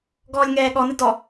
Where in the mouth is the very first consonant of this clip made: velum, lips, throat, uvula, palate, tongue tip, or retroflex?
velum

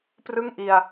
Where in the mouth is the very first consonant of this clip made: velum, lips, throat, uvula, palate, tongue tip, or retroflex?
lips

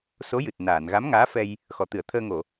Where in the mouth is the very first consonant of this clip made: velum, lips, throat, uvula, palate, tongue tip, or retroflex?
tongue tip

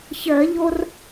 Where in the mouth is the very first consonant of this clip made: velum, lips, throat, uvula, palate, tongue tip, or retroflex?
palate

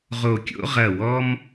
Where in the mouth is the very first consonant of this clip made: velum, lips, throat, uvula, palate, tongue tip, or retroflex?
uvula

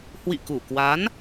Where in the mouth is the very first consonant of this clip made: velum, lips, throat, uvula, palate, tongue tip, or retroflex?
throat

